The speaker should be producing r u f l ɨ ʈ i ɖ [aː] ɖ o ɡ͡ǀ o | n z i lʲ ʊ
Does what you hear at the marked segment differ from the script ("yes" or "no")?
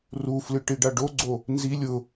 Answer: yes